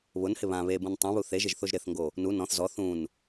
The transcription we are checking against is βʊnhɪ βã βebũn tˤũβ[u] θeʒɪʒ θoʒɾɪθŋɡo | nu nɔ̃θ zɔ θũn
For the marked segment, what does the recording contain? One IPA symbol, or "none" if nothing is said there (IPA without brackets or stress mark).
u